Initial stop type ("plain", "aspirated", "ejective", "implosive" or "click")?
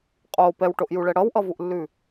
ejective